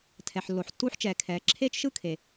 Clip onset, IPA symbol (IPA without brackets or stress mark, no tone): tʰ